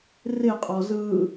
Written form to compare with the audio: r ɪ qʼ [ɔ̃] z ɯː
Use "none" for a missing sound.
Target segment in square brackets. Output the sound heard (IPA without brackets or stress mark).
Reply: ɔ